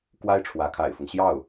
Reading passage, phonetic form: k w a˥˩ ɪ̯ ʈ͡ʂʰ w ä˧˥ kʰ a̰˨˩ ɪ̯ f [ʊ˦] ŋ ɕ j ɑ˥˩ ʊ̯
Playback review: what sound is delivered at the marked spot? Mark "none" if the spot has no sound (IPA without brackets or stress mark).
ʊ˦